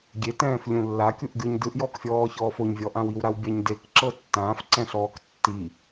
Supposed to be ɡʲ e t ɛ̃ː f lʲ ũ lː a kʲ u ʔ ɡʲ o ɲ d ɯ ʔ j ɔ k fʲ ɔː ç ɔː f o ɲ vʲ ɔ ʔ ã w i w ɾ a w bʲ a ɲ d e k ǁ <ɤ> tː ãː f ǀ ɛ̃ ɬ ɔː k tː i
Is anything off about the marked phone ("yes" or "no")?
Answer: no